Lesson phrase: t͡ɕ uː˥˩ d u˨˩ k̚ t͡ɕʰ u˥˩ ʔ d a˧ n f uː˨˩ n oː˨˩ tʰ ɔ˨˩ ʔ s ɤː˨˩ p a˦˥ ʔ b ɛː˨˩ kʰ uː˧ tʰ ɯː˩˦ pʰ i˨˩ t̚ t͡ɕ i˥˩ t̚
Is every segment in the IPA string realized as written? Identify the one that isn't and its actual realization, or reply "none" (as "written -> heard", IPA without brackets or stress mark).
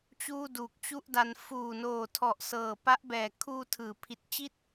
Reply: t͡ɕʰ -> t͡ɕ